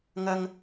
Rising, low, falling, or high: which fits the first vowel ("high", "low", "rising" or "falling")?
high